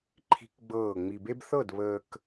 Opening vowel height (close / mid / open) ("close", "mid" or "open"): close